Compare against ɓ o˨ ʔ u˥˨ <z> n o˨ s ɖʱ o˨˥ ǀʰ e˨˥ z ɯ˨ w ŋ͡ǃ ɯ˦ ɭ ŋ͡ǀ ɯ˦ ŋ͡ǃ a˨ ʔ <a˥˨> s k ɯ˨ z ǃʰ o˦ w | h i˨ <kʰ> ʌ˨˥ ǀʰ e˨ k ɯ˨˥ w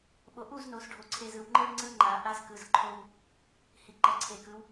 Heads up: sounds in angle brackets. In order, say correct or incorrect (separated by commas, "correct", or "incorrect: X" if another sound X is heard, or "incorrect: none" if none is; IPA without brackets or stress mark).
correct, correct, incorrect: ǃ